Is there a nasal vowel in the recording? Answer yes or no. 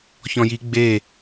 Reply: yes